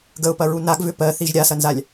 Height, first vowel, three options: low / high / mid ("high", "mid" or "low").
mid